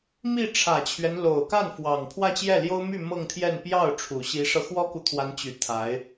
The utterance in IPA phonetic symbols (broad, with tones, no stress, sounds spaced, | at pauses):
m i˥˩ ʈ͡ʂʰ ä˨˩ t͡ɕʰ ɥ ɛ˦ n l o˨˩ ʊ̯ k a˥˩ n f w ɑ˨˩ ŋ pʰ w ä˥˧ t͡ɕ j ɛ˥˩ l j o˥ ʊ̯ m y˥˧ m ɤ˥˧ ŋ t̪ʰ j ɛ˥˧ n p j ɑ˥˩ ʊ̯ ʈ͡ʂʰ u˨˩ ɕ i˧˥ ʂ ɤ˧ x w ɔ˥ k u˨ t̪ʰ w a˧˥ n t͡ɕ y˨˩ t̪ʰ a˧˥ ɪ̯